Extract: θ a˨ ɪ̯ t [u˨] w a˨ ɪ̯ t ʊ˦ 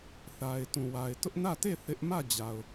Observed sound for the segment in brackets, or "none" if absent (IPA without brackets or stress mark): ũ˨